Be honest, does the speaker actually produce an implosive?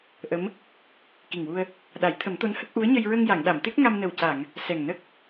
yes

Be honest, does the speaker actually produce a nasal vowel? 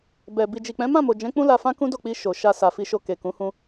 yes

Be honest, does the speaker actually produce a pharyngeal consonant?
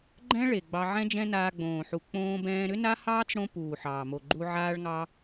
yes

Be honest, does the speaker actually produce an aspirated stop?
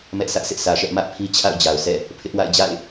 yes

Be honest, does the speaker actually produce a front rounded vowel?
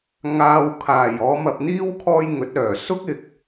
yes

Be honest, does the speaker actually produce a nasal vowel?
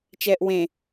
yes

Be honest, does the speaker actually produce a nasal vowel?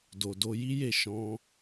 yes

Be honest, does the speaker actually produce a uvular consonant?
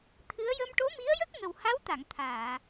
no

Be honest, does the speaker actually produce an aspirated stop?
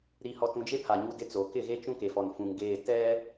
yes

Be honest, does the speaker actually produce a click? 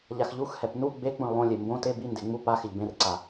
yes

